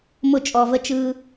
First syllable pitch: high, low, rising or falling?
falling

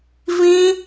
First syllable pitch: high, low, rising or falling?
high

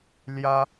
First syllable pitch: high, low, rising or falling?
high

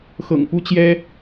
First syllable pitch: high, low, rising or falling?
low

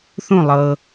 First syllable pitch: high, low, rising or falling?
falling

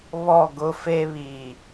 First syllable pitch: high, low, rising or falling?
falling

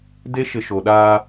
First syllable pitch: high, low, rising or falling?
high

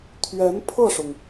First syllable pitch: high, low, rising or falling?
rising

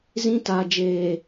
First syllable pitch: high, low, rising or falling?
high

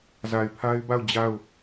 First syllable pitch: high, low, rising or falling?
low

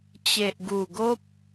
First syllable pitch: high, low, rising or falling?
low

